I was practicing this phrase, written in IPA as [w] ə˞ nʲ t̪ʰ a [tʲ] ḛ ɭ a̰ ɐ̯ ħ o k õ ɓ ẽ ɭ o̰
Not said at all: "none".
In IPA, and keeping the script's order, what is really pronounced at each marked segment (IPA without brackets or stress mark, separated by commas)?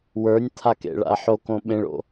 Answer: w, k